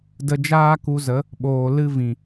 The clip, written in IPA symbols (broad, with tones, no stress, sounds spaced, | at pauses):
d ə˧ d͡ʒ aː˦ k u˧ z ə˨˦ | ɓ oː˨ l ɨ˦ v ĩ˨